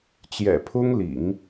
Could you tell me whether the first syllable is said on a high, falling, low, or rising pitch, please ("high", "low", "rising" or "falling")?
low